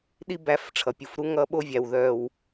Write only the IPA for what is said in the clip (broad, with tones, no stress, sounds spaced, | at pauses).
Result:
ɗ i˦ b æ˧ f ʈ͡ʂʰ ʌ˨ pʲ u˨ f ɾ u˧ ŋ ʌ˦ ɓ o˦ vʲ æ˨ w ð œ˨ w